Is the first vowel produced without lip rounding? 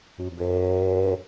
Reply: yes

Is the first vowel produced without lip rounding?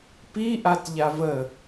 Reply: yes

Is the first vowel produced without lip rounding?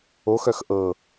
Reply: no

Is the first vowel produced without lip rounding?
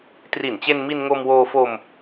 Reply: yes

